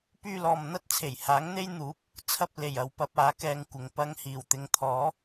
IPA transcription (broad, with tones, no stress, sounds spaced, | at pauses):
p yː˧ l ɔː˨ m n̪ ɐ˥ t̚ t͡sʰ e˨˩ j h aː˨˥ ŋ n̪ e˥ j n̪ uː˨˥ p̚ | t͡sʰ ɐ˧ p̚ l e˨˩ j ɐ˨ w p ɐ˧ p̚ aː˨˥ k ɛː˧ ŋ kʷ ɪ˨ ŋ p ɐ˧ ŋ h iː˨˩ w t̪ ɪ˨˧ ŋ t̪ʰ ɔː˨˥